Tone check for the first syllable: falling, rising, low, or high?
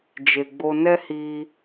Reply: low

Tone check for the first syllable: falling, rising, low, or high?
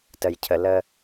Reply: low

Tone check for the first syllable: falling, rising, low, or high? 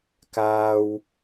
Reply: low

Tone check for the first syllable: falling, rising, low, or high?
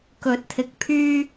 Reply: rising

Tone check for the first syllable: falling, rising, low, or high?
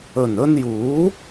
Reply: low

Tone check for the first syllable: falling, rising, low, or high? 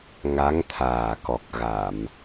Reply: rising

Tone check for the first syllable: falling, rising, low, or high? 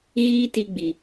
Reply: high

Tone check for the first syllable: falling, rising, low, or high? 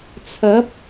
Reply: rising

